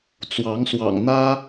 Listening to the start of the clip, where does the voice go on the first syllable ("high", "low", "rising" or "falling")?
rising